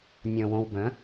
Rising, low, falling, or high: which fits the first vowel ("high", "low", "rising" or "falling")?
low